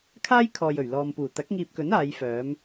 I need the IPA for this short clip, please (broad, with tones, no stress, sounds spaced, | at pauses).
kʰ aː˥ j kʰ ɔː˨ j ɵ˨˩ ɥ l ɔː˨ m p uː˨˩ t̪ ɐ˨˥ k̚ ŋ iː˨ p̚ k ɵ˨˥ n aː˨˧ j f œː˨˧ m